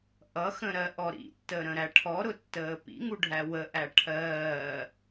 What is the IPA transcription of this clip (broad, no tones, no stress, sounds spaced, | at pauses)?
ʔ ʌ x ə̃ ɾ ɜ ʔ ɔ ɾ ḭ tː ə ɾ ə̃ ɾ æ ʈʰ ɔ ɾ ʊ tː əː p ḭ ŋ u ɖʱ æ w ə ʔ æ ʈʰ ɜː